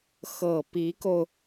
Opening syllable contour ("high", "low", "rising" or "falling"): low